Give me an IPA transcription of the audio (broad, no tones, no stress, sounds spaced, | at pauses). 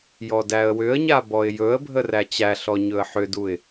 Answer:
j ɔ d æ ə̯ w ʏ ə̯ ɲ a b ɔ ɪ̯ j ɵ ə̯ bʱ ə r æ t͡ɕ æ ɬ ɔ ɲ ɵ ə̯ ħ ʏ d u ɪ̯